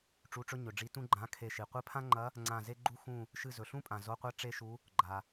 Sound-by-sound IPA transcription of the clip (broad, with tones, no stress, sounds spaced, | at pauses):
ʈ͡ʂ u˧˥˧ ʈ͡ʂ ɵ˥ ɲ ɵ˨ ɖ͡ʐ i˧˥ t ũ˥ ɡ͡ǃ ã˧˥˧ kʰ e˦˨ ʃ i˨ qʷ ɨ˧˥ pʰ ã˥ ŋ͡ǃ ɐ˧˥ | ŋ͡ǀ ã˦˨ z e˥ ɡ͡ǃ u˥ x ũ˦˨ | ʃ ɨ˦˨ z ɵ˨ ɬ ũ˥ pʼ ã˨ z o˧˥˧ qʷ a˥ ʈ͡ʂ e˥ ʃ u˧˥ | ɡ͡ǃ a˨